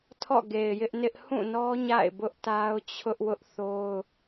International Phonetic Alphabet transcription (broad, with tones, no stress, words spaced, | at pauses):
tʰɔ̰˦˨ ɡe˨ɪ̯jɪ˦ʔnɪ˦ʔ hũ˦˨nɔ˦ ɲa̰˦˨ɪ̯bʊ˦ʔta˦ʊ̯ t͡ɕʰʊ˦ʔwʊ˦ʔ θo˦ʊ̯